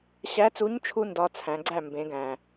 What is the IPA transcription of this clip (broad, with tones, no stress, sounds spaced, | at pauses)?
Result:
ɕ æ˧˥ t͡s u˧˥ ɲ t͡ʃʰ u˥ n d ɒ˧˥ t͡sʰ æ̃˩˧ ɡ͡ǀ æ˥˩ m b ẽ˩˧ ɡ æ̃˩